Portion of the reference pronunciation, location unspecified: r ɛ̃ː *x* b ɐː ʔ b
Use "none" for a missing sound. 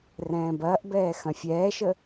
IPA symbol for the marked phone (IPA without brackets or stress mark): none